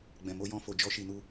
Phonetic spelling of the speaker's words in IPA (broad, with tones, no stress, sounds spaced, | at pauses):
ɡ͡b ɛ̃˧ m o˦ j ɔ̃˦ f o˧ d͡ʒ ɔ˦ ʃ i˧ n u˦